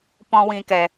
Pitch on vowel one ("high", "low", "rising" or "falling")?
high